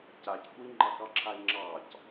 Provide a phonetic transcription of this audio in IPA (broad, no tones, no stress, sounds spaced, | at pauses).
c a c kʷ i ŋ͡ǃ ɑ k ɑ ǁʰ a e̯ ŋ͡ǁ ɑ c